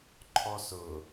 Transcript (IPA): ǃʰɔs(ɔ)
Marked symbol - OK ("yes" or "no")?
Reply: no